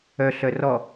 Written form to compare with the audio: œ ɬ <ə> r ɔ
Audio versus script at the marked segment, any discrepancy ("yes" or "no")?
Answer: yes